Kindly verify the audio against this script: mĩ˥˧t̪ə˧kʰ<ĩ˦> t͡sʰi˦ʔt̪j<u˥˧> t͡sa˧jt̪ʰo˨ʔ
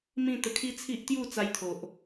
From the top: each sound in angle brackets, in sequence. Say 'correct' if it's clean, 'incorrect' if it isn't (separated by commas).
incorrect, correct